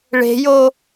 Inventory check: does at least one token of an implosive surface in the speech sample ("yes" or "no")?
no